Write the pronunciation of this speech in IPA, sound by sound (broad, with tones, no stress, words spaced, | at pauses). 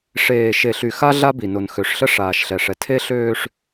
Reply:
ʂeː˨ ʃe˨ɬy˨ xa˦ ɮa˦bi˨no˨n xø˨ʂɬə˦ ʂaː˨ʃɬɛ˨ʂɛ˨ tʰe˦ɬøː˦ʂ